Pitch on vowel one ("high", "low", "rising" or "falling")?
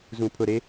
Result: low